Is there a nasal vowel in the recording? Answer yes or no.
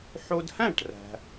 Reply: yes